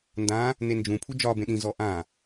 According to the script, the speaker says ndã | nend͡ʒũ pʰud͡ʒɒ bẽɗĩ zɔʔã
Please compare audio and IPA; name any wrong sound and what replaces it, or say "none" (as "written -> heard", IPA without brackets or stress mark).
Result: none